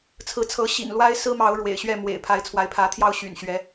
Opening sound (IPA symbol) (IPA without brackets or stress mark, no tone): t͡sʰ